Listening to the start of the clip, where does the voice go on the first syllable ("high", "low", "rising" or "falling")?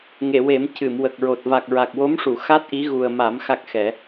low